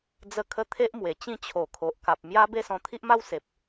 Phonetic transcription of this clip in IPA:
d͡zə˦kʰə˦t̪ʰe˦ʔmwe˨˩ t͡ɕĩ˥˧t͡ɕʰo˨˩kʰo˨ʔ ka˨p̚mja˦ be˥˧sɔ̃˧t̪ʰi˦ʔma˦w se˨p̚

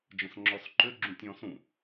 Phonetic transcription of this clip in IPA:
d͡ʒə̃sŋ͡ǁɔsǃʏ ɡ͡ǁũtʲɔ̃sũ

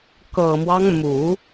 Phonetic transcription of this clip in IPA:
kɤ˨˩mwɑ˦ŋmu˨˩˦

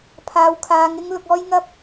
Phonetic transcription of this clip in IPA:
pʰaː˨˧wkʰaː˨˧ŋɪ˥ŋlʊ˧k̚ ɔː˥jŋɐ˥p̚

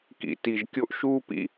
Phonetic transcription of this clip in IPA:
kḭ˨ti˨ʒkʲo˦ʔ ʃuː˦pḭ˦

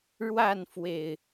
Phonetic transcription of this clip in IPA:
ɻwa˥˨nfwe˨˩ɪ̯

